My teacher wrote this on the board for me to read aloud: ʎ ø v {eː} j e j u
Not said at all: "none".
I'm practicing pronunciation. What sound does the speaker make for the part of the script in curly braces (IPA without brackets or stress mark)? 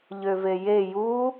e